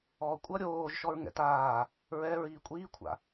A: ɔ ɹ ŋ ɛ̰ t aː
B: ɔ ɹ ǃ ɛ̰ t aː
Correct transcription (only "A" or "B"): A